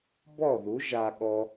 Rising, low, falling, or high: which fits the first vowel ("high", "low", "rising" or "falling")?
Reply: falling